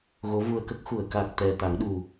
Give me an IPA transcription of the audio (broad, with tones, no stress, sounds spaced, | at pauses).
ɣ o˧˥ v u˧ ə̯ k ə˦˥ k̚ x u˨˩˨ ə̯ k a˨˩ k̚ t̪ ɛ˨˩ t̪ a˨˩˦ ŋ ɗ u˨˩